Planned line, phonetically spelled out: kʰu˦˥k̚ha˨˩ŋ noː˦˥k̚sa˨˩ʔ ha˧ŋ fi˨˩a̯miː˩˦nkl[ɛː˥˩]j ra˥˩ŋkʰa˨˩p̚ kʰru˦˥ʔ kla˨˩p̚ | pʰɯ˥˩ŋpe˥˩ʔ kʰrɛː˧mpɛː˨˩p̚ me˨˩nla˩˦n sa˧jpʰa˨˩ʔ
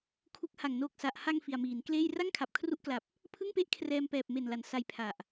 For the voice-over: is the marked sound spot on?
no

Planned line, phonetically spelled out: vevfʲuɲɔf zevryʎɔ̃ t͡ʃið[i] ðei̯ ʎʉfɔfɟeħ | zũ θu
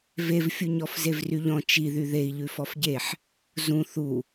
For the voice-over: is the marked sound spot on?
no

